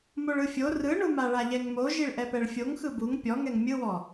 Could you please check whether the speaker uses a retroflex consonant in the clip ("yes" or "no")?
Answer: yes